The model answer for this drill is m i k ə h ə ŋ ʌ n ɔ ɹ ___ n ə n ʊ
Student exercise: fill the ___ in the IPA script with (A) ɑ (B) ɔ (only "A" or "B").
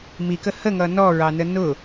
A